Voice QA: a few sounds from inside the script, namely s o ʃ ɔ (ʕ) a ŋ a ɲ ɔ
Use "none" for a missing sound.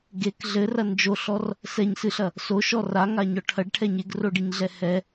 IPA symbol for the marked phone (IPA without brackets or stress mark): r